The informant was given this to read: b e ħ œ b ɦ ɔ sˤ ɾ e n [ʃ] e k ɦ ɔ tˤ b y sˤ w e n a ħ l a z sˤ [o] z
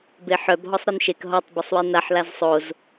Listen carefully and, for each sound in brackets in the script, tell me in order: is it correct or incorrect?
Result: correct, correct

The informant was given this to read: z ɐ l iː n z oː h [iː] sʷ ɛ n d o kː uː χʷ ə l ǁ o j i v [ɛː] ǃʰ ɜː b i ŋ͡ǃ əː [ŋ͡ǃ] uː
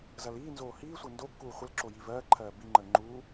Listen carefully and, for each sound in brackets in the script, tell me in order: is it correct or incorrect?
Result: correct, incorrect, correct

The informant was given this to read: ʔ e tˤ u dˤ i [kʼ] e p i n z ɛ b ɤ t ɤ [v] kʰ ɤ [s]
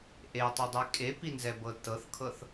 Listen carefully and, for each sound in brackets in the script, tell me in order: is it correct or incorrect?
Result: correct, incorrect, incorrect

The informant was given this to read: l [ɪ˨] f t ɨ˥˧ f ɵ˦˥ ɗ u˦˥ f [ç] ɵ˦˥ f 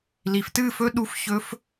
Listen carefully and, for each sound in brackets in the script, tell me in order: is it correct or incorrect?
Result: incorrect, correct

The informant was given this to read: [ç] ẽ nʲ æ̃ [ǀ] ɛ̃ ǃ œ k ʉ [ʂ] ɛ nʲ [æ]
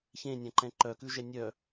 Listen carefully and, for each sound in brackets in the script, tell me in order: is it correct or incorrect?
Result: correct, incorrect, incorrect, incorrect

